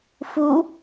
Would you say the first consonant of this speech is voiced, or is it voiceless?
voiceless